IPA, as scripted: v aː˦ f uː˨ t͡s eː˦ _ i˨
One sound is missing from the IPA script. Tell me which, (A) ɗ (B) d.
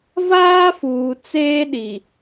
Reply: A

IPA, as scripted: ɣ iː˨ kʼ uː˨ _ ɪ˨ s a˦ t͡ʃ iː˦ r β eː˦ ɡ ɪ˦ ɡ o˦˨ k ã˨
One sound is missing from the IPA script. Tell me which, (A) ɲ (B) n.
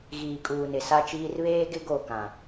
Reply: B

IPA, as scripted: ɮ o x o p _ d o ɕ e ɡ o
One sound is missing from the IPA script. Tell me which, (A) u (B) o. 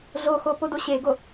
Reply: B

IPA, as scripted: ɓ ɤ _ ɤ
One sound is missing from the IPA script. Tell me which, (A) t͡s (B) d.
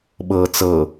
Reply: A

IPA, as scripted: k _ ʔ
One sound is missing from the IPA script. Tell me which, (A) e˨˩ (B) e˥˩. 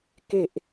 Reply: A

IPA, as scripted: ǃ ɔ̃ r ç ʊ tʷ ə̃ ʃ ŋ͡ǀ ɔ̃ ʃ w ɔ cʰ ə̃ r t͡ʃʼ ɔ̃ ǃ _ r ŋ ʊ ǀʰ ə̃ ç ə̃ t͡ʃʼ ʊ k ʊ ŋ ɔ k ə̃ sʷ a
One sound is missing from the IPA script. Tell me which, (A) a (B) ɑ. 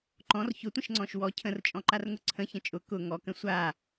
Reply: A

